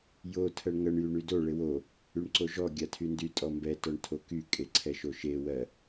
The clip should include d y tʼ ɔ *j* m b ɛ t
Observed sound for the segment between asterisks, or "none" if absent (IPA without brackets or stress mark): none